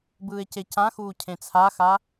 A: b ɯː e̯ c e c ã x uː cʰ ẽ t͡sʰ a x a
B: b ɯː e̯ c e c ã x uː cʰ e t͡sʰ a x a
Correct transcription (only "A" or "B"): A